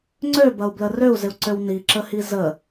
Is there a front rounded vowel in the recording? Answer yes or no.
yes